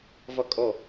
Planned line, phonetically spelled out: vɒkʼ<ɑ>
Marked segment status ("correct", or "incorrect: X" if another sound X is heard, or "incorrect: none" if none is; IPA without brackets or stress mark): incorrect: ɔ